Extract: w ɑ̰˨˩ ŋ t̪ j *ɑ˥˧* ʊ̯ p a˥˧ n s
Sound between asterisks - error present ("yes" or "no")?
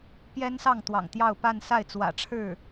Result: no